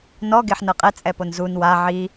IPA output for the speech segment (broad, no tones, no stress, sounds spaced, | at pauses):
n ɔ ɡ e ħ n ɤ qʼ ɛ t͡sʼ ɛ p o n z u n w a ʕ i